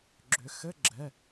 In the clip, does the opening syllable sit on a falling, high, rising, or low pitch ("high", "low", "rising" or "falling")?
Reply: rising